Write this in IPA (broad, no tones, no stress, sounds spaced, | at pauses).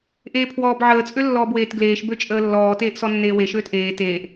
ʔ eː pʰ w ɔː b ʕ əː t͡sʼ ø lː ɔː b w eː t ɡ l eː ʃ b ø t͡ʃʼ əː lː ɔː t eː ʔ s ɔ nː eː w e ʃ øː t ʔ eː t eː ʔ